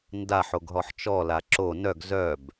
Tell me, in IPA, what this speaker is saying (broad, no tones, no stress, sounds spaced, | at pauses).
n d a ħ o ɡ ɦ ɔ ħ t͡ʃ ɔ l a ǁ o n œ ɡ z œ b